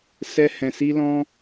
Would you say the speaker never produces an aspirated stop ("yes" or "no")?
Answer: yes